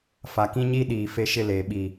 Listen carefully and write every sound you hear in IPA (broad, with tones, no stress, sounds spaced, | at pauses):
f a˨ k ĩ˦ ɲ i˦ ɗ iː˨ f e˦ ʃ ɪ˦ l eː˨ ɓ i˨